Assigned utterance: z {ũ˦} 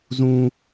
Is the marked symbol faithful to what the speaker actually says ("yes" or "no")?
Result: yes